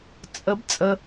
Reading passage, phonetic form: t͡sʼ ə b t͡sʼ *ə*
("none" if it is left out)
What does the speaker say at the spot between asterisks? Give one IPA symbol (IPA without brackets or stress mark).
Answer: ə